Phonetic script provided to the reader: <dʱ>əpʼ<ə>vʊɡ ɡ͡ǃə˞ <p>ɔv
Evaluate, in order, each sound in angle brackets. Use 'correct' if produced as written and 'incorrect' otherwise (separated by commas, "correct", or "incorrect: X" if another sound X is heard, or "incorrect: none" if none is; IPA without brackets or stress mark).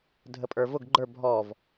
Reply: correct, incorrect: ə˞, incorrect: bʱ